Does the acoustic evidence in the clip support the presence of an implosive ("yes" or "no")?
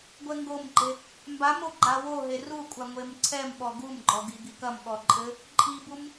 yes